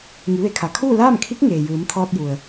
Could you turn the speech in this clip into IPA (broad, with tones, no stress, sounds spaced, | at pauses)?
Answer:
ŋ i˩˧ ʋ e˩˧ kʰ a˩ kʰ uː˥˨ l aː˥˨ m kʰ i˧˥ k̚ ŋ eː˩ j ɯː˩˧ m t̪ʰ ɔː˧ t̚ j u˩ ə̯